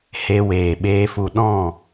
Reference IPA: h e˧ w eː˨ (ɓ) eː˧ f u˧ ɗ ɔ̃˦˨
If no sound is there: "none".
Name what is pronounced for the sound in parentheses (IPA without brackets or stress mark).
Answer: ɓ